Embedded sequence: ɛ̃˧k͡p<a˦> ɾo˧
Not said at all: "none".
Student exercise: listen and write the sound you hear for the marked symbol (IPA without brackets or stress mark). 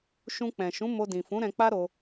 a˦